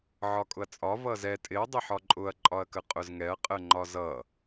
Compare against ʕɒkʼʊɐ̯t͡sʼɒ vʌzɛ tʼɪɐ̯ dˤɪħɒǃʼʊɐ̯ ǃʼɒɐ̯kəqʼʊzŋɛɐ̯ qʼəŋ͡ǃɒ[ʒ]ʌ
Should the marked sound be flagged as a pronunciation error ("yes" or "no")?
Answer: yes